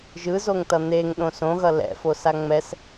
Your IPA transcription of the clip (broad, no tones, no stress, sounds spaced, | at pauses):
ʒ ɯ z o ŋ t ʌ n̪ e ŋ ɗ õ s õ ɣ ʌ l ɛ̰ f o s a ŋ͡m ɛ s